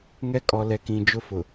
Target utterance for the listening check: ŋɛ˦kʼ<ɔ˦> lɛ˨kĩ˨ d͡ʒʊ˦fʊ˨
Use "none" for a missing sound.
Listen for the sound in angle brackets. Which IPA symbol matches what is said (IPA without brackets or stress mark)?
ɔ˨